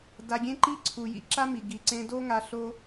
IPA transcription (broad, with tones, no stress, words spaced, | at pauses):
da˩ɡʲẽ˧ ǃi˥ǀʰu˩jḭ˧ ǁa˥mi˩ ɡi˩ǀẽ˧do˥ŋa˧ ɬo˥